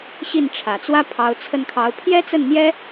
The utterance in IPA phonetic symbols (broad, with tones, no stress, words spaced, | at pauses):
ɕi˥˩nʈ͡ʂʰä˨˩t͡swä˥pʰɑ˧˥ʊ̯ t͡sʰə˥˩nkʰɑ˧˥ʊ̯ pʰjɛ˥t͡sə˥˩nn̪jɛ˥